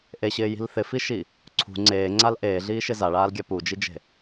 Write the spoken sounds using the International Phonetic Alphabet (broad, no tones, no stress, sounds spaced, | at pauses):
ʔ e ɕ ɪː j i̤ l θ ɪ f i ʃ i | ǀʰ ṳ ŋ͡ǀ eː ŋ͡ǀ a l ʔ eː ɮ iː ʃ ɪ z a ɭ aː l ɡʲ a p u d͡ʒ i d͡ʒ e̤